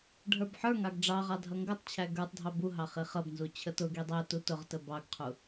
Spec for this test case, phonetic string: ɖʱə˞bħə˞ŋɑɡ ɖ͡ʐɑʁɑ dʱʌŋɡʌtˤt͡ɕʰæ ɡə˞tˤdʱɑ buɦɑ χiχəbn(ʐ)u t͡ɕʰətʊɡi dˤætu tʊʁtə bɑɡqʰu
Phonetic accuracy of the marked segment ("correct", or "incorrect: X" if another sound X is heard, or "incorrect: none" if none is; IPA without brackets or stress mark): incorrect: z